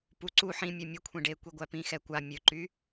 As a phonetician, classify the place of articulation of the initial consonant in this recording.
labial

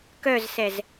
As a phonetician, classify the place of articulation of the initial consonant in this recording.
velar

